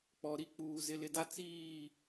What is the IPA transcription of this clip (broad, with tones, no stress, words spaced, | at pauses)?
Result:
k͡pɔ˨ɾi˦k͡puː˨ zɪ˨lɪ˨da˦ t͡siː˦˨